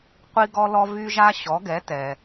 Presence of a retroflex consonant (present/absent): absent